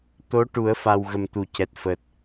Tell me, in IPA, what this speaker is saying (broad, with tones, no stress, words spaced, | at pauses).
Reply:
t̪o˧˥ ʈu˨˩˦ə̯fa˨˩w ɣə˨˩mt̪u˨˩˨cɛ˨˩t̚fəː˨˩t̚